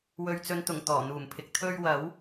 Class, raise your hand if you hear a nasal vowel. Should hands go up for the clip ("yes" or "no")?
no